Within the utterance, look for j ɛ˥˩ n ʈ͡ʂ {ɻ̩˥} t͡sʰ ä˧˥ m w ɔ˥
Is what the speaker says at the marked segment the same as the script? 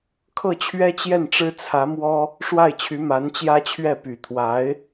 yes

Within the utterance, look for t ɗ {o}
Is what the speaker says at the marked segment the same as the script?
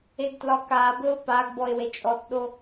yes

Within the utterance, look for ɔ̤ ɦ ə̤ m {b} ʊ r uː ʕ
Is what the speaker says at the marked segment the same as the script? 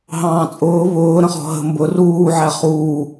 yes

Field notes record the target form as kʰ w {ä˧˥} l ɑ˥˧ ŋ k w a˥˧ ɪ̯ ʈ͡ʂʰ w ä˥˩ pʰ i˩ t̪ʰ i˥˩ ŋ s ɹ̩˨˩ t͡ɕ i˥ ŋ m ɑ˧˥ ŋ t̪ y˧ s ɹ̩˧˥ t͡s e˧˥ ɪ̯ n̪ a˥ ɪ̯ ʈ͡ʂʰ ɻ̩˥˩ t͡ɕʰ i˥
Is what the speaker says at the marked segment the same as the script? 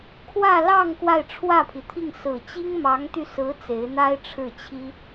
no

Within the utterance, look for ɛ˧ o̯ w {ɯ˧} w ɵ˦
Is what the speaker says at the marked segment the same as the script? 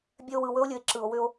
no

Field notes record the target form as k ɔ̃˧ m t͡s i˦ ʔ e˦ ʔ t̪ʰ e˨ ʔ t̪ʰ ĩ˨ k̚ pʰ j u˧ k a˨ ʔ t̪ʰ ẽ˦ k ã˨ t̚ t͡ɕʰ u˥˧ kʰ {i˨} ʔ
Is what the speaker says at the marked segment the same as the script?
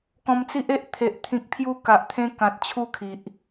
yes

